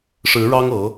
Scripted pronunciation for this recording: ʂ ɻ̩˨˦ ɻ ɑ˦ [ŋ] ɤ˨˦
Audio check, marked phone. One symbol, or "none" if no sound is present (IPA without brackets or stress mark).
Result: ŋ